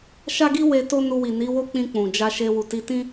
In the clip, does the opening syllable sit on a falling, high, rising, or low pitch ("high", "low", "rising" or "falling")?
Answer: high